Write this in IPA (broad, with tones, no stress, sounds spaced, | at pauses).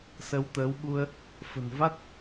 s ə˨˦ w t̪ əː˨˦ w ɓ u˧ ə̯ | f ə̤˨˩ n v a˦˥ t̚